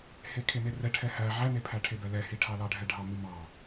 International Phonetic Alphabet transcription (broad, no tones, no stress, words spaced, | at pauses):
hekʰenerɛ ʈʰɛhæ ʕænepʰæʈʰe bɛlɛhiʈʰɑ lɑɖʱɛɖʱɑ mimɑ